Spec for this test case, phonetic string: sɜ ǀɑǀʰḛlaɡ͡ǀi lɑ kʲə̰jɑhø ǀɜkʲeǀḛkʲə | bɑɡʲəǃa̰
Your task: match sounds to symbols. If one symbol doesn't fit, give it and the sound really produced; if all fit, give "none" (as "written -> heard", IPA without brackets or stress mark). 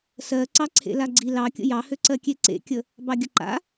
none